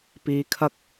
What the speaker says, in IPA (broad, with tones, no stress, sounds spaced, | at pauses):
p iː˨˧ kʰ ɐ˧ k̚